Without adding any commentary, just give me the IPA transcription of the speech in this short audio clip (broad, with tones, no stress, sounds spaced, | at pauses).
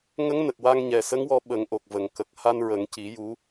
ŋ ə˧˥ ŋ n ə˨˩ k̚ w a˧ ŋ ɲ ɛ˨˩ s ə˧˥ ŋ w ɔ˧ ɓ ə˨˩˦ ŋ ʔ o˨˩ k̚ v ə˨˩ ŋ k ə˨˩ k̚ h a˧ n ɹ ə˨˩˦ ŋ c i˨˩˦ j u˧˥